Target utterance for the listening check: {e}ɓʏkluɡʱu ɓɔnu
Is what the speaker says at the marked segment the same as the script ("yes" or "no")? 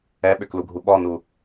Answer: no